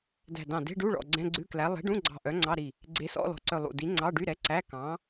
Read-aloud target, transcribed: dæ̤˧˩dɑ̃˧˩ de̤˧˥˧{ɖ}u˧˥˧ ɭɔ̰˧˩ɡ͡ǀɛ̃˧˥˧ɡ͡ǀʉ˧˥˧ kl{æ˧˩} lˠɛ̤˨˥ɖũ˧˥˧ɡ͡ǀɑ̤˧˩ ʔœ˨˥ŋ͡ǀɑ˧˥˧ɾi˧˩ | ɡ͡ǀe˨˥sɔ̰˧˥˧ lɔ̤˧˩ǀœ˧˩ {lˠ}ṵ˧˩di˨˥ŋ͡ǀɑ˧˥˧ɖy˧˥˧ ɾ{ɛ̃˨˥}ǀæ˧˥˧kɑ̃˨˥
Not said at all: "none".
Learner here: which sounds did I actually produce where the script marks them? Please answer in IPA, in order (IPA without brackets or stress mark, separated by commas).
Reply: ɖ, æ˨˥, lˠ, ɛ˨˥